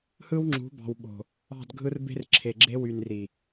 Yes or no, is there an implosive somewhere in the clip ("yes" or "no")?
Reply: yes